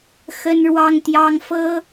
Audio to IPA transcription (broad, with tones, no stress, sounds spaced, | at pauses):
x ə˥ n ɻ w ɑ˥ ŋ t̪ j ɑ˥ ŋ f ɤ˥